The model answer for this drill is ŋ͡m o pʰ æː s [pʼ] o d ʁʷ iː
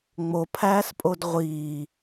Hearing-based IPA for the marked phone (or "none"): pʼ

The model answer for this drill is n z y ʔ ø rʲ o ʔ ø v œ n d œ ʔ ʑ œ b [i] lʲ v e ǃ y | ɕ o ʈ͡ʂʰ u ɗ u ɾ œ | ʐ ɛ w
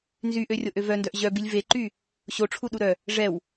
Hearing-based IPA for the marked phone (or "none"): i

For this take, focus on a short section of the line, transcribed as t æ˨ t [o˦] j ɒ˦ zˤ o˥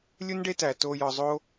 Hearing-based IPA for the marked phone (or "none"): o˦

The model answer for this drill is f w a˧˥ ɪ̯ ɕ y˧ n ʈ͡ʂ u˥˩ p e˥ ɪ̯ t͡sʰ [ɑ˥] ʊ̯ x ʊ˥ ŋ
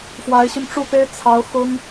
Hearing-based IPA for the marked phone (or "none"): ɑ˧˥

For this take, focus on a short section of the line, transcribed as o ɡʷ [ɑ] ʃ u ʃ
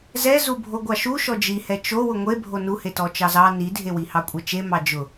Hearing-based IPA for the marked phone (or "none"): ɑ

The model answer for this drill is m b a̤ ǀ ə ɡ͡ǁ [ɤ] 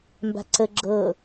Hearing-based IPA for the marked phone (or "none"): ɤ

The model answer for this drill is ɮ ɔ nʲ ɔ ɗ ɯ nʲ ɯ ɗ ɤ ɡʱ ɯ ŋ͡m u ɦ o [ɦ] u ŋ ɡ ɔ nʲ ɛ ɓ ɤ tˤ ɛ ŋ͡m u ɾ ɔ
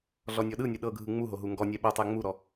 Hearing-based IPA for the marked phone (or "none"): ɦ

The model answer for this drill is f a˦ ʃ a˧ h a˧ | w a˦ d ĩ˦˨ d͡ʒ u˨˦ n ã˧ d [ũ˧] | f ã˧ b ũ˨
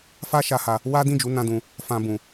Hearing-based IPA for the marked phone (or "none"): ũ˧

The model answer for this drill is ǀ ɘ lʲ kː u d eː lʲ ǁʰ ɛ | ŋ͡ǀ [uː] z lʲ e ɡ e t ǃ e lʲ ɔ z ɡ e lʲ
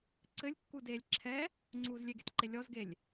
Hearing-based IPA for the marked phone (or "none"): uː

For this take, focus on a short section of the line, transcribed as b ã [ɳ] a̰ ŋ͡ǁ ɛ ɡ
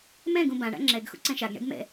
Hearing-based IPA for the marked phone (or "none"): ɳ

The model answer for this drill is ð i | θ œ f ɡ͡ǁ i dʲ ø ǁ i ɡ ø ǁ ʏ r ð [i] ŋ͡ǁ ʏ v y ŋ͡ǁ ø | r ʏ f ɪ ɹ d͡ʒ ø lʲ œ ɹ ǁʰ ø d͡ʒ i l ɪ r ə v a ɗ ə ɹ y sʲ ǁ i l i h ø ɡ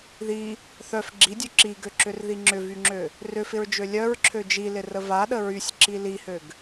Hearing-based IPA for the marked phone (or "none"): i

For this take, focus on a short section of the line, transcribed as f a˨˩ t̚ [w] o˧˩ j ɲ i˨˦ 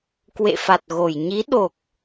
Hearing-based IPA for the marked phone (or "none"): ɣ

